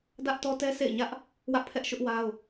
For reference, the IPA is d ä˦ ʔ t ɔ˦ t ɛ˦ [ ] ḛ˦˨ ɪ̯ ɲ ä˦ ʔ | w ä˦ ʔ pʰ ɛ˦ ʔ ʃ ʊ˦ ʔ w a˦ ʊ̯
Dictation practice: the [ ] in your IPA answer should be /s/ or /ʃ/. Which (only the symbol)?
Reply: s